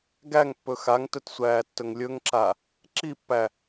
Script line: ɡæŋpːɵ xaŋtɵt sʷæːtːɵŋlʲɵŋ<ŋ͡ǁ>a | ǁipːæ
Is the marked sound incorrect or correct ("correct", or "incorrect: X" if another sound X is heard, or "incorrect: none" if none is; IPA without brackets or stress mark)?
incorrect: ǁ